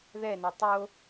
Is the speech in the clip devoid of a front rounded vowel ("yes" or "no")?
yes